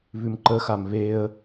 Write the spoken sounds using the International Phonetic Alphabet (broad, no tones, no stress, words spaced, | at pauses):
βʉmǃəxam βeə̯